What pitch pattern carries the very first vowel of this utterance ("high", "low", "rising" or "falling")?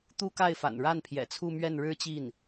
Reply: high